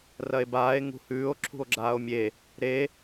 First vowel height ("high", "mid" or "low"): low